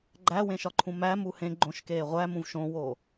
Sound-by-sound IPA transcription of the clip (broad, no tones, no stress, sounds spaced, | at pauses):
ɡ͡ǃ æ w ẽ ʃ ɒ ǃʰ ũ m æ m u h ẽ ɡ͡ǃ õ ʃ k eː ʁʷ æ m ũ v ʃ õ w oː